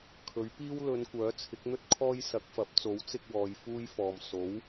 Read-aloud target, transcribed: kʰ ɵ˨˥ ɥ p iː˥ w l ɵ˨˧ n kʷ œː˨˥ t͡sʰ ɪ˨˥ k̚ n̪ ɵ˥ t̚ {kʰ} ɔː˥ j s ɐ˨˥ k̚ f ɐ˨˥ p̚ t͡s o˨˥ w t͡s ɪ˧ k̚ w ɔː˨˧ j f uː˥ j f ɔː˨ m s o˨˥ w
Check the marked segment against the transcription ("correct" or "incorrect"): correct